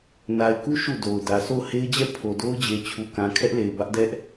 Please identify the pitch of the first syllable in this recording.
low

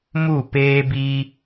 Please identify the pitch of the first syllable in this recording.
falling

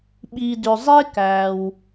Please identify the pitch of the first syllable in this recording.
low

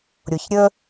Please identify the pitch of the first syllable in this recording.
low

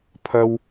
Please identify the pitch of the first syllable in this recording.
high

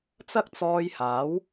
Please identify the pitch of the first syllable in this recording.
high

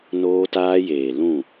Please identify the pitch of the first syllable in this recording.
high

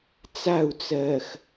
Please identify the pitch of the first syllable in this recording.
falling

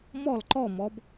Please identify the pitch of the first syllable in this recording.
falling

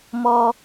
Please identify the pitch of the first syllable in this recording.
low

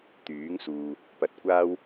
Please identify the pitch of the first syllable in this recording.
rising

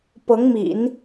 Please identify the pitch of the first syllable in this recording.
rising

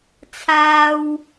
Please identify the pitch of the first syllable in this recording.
high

